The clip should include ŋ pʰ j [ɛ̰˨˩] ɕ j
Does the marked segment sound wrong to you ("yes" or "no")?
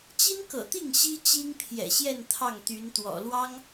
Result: no